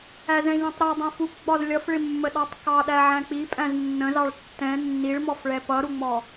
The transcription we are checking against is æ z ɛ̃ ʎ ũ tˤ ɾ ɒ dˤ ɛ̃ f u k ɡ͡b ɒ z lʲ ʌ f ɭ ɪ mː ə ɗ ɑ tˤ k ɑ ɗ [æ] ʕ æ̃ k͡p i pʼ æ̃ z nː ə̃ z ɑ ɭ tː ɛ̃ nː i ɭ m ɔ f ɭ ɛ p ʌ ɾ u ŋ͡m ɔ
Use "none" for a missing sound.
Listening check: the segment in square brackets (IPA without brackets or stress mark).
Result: æ